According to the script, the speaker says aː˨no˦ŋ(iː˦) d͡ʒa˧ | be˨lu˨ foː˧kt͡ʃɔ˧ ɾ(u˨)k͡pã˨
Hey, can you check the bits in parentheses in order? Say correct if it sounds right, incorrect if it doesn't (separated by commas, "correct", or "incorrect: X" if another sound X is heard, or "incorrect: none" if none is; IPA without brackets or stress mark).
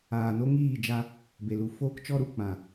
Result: incorrect: iː˦˨, correct